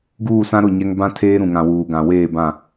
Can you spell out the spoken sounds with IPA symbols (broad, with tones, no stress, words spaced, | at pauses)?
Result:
ɡuː˦˨sã˦ ɾʊ˦˨ɲɛ˦ŋ bã˦tʰeː˦ ɾũ˨ŋã˨wuː˨ ɡã˨weː˦˨bã˦˨